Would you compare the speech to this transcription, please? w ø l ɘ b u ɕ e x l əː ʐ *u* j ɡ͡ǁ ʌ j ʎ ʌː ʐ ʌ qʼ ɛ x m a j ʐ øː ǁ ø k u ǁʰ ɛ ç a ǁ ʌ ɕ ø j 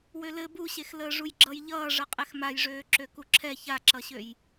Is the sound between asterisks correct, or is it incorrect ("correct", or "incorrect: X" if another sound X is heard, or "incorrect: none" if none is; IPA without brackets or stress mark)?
correct